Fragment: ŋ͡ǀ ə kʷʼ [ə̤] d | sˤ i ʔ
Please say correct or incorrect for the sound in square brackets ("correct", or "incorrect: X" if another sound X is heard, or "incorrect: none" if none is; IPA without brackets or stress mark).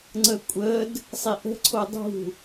incorrect: ə